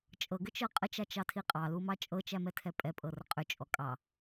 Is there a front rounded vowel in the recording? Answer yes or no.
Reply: yes